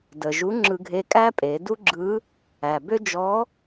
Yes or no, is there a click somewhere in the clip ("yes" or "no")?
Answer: yes